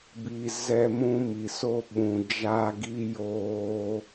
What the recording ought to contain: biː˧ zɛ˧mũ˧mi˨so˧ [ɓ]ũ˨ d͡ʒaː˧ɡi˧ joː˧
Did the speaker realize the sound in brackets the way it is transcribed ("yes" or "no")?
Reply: yes